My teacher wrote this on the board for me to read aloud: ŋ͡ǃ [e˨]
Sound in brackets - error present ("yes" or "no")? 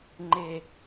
no